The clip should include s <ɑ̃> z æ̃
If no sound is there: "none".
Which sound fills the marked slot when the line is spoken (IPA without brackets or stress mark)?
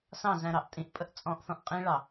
ɑ̃